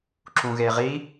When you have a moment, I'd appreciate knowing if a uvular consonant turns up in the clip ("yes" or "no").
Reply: yes